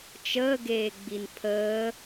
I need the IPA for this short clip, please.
t͡ʃəːɡeːɡ͡bin pʰəː

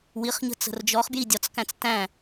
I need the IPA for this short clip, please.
wiχɲə̤ t͡sə̤rd͡ʒɔχbji dʲɒt͡skæ̃t͡s tæ̃

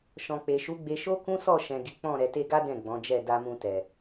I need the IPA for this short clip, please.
ʃɔ̃˨k͡pe˨ʃu˨˦ɡ͡be˧ ʃo˦kũ˦sɔ˦˨ ʃɛ̃˨ ɡi˨˦k͡pɔ̃˦˨ ɾɛ˨te˧ɡa˦ dɛ̃˦˨ɡ͡bɔ̃˨˦d͡ʒɛ˦˨ da˧mũ˧tɛ˨

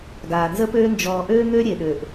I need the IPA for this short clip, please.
ɡaː˨nzə˦pøː˦ nd͡ʒɔː˨ʔøː˦ŋø˦ ɾʲe˨ɗø˨ʔ

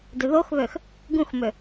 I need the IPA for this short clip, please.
dʏðoxβøx | ɡũxmʏ

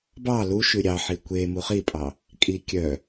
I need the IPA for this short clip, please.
bɑ luʃʉ ɾʲɑħi kʷe muχipʼɑ | kʼi kʲœ

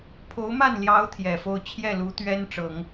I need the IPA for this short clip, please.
pʰo˧˥ʊ̯ma˥˩nljɑ˧˥ʊ̯ t̪ʰjɛ˨˩fo˥˧ʊ̯ t͡ɕʰjɛ˥˩lu˧˥t̪ɥɛ˥nʈ͡ʂɤ˨˩˦ŋ

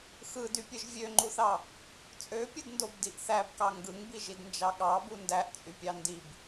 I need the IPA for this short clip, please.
xɯdypʲɯʒ vʲøŋ͡ǃuθɑ | t͡sʼøpʲɯdndobdiʔ θæbkɑ ŋɡɯŋbiʒidnd͡ʒɑ ɠɑbu ndæʔt͡sʼypʲɑ ndib

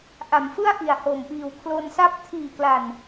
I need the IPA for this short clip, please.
ʔa˩˦mfɯ˥˩a̯ʔi˨˩a̯ ho˨˩mpiː˨˩wkʰlo˧nsa˥˩p̚ tʰiː˨˩kla˨˩n

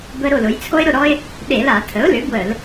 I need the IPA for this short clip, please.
bə˦ɾo˥˨ lʊ˩˧jt͡sʰo˦ɪ̯ɾʊ˥˨ɾɔ˦ɪ̯ | ɗe˧˩˧la˧˩˧ tʰə˩˥ʊ̯lʏ˩˥ bwə˧˩˧l

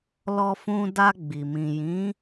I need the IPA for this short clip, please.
lɔ˧fũ˧ da˧ɡ͡bi˨ mĩ˨jĩ˨˦

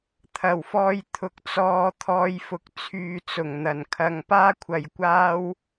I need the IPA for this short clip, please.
t̪ʰɐ˨˩wfɔː˧j t̪ʰʊ˨k̚t͡sɔː˧t̪ʰɔː˧j fʊ˨k̚t͡sʰyː˨t͡sʊ˨˩ŋn̪ɐ˨˩n kʰɐ˨ŋpaː˥kʷʰɐ˨jkʷaː˥w

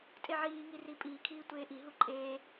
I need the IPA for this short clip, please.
tʼeʕiːŋiri pʼiːkʰiː tʷeːʔiɦu ǃʼeː

